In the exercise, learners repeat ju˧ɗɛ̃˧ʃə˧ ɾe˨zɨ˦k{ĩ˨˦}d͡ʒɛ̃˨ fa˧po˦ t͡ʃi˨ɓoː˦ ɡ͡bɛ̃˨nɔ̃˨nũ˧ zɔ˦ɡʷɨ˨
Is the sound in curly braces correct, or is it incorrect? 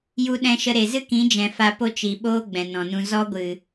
correct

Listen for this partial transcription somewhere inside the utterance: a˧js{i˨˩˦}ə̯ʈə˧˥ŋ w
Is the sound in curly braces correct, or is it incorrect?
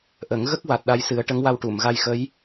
incorrect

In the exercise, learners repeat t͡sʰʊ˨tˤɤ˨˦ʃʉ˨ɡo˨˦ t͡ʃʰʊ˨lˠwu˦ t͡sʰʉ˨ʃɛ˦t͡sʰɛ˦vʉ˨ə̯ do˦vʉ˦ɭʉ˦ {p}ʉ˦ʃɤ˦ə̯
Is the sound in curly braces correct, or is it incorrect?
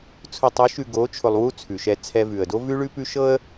correct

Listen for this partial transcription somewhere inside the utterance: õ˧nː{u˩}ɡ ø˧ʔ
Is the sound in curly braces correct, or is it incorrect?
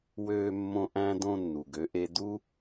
correct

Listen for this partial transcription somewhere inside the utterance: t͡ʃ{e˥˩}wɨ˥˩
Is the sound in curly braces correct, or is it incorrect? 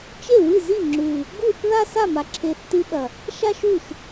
correct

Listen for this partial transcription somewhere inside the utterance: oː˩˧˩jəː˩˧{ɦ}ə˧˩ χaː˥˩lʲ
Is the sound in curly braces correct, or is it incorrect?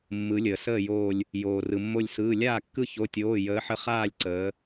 incorrect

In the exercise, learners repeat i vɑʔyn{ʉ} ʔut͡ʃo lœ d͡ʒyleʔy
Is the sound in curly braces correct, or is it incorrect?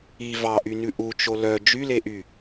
correct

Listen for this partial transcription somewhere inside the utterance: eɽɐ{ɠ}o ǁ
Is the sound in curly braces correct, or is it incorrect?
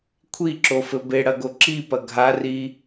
incorrect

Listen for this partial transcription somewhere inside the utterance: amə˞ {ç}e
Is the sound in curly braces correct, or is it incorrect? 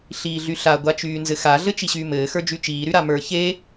correct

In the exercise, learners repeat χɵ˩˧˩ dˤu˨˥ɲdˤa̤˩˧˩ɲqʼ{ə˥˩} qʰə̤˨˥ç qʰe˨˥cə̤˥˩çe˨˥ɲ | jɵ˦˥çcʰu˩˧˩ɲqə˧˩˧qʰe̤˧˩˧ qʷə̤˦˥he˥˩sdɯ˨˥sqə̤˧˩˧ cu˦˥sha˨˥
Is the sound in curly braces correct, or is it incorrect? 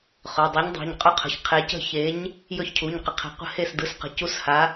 incorrect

